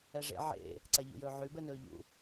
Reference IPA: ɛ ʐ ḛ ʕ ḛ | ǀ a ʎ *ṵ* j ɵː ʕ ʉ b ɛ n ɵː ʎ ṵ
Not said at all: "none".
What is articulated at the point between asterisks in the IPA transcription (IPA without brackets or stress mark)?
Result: ṵ